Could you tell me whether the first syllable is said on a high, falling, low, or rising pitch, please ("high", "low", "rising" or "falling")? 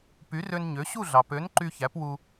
rising